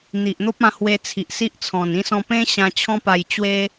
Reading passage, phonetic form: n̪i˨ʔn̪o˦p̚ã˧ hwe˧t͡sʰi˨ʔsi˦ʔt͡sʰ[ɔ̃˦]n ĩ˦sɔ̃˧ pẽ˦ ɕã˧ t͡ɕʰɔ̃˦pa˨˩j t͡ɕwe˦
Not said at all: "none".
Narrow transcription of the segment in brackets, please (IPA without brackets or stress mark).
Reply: ɔ̃˨˩